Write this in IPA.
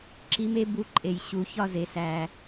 ǁ i˧˥ m e˧˥ b u˧˥ ǃʼ e˨˩˦ j ɕ u˨ ç ɒ˥˧ z e˨ s æ˨

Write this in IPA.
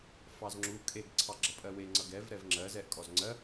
f ɑ z ŋ͡ǁ u kʼ e ɡ ǀʰ ɑ ɡ͡ǁ ʌ pʼ ɜ w e ŋ͡ǀ ʌ ɡ ɛ v ɾ ɛ v ŋ͡ǁ ɜ z ɛ ʔ kʼ ɔ z ŋ͡ǀ ɜ

